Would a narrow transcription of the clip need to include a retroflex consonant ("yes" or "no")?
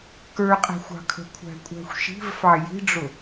yes